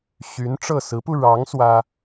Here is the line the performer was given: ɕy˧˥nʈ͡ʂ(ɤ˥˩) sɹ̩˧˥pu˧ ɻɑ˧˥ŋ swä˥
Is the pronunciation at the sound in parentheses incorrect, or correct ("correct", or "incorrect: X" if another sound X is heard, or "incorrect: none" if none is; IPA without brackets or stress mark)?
correct